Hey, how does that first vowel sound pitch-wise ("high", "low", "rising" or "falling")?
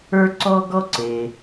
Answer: high